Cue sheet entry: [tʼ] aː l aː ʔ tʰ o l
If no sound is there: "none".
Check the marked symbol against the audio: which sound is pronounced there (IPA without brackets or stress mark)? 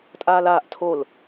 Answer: tʼ